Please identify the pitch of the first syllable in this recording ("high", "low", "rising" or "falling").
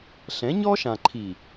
rising